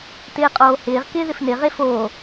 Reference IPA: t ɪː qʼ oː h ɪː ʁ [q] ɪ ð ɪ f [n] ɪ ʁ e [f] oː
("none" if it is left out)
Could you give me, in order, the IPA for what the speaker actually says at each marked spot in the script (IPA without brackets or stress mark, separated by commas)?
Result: k, n, f